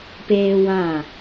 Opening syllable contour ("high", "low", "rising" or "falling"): high